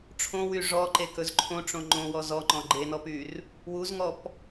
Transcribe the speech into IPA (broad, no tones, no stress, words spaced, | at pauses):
ʈ͡ʂʰõwy ʐɔǃekɵz ǃʰõʈ͡ʂõ ŋ͡ǃõwɔ zɔŋ͡ǃɔ̃ ɡ͡ǃenɔpyr | wuzŋɔp